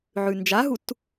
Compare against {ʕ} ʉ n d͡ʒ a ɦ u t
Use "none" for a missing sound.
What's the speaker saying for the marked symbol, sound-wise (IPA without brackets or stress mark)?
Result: ʕ